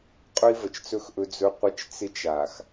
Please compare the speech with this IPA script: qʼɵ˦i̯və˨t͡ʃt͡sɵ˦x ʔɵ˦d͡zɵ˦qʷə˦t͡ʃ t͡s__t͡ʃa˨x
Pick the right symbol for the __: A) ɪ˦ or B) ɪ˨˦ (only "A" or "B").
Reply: A